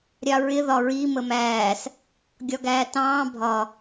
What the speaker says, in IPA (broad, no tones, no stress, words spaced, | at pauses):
ɾʲɑɹɪ ðɒɹi məmæːs | ɡʲɒɡæːtɑ̃ː bʱɒ